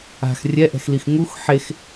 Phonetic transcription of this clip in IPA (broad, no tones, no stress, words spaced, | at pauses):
a̤x rʲɛʔɛ̤xlix ŋux ħex